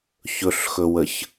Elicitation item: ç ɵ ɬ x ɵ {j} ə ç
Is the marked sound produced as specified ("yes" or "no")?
no